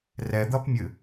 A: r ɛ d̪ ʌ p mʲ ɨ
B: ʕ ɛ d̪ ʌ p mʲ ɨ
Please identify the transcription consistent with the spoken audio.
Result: A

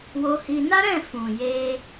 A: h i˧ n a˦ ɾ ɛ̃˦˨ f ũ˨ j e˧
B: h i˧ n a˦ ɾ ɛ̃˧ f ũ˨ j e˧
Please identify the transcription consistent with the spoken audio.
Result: A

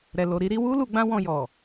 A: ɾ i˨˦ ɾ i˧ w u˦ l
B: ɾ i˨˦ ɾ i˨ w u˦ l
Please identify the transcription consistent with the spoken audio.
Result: A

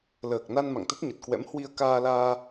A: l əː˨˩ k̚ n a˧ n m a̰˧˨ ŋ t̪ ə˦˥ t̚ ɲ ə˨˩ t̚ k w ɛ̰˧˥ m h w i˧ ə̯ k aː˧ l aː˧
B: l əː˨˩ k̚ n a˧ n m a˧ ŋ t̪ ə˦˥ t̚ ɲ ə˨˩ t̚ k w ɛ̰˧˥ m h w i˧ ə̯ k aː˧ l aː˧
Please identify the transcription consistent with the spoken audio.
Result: A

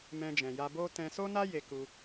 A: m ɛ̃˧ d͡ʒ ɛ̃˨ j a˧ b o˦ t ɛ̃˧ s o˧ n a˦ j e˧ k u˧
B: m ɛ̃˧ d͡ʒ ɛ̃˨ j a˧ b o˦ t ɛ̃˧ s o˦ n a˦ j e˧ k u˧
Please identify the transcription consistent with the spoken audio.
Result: B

